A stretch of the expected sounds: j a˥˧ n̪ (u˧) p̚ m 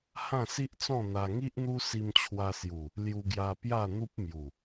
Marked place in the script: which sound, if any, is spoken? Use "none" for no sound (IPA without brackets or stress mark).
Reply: u˦